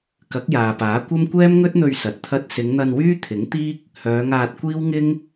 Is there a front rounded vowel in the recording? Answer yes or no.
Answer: yes